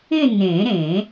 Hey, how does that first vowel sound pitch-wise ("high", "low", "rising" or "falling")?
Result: falling